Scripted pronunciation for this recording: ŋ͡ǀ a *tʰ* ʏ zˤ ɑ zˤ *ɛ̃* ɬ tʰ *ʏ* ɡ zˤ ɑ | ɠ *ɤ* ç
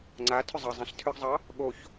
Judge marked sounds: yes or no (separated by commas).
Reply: yes, yes, yes, no